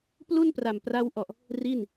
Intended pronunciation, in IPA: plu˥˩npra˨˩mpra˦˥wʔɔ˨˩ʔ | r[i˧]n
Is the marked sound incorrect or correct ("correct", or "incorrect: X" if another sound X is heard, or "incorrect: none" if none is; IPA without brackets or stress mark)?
incorrect: i˥˩